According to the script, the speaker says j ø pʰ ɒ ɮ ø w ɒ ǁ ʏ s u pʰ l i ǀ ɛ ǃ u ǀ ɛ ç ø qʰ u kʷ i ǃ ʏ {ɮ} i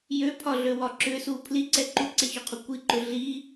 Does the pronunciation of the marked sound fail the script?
no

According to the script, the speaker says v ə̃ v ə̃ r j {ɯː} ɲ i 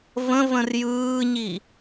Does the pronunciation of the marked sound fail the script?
no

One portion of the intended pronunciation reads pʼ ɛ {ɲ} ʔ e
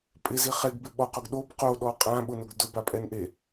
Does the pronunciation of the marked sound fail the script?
yes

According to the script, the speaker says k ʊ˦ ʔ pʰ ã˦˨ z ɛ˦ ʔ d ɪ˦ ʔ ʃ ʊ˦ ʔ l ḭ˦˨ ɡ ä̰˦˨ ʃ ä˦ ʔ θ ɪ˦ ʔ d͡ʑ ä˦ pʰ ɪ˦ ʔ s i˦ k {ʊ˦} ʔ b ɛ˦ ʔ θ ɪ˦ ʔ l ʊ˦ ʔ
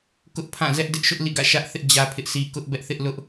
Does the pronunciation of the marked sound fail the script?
no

